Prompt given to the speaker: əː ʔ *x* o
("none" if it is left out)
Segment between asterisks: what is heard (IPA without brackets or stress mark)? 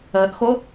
x